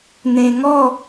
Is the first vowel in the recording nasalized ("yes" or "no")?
yes